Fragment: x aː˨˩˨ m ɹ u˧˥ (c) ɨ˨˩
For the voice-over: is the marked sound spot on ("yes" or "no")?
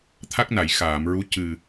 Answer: yes